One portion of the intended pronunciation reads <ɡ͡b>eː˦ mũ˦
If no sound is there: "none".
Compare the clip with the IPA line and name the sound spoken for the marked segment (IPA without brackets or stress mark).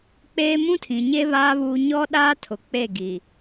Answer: k͡p